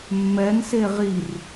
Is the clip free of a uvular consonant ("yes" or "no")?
no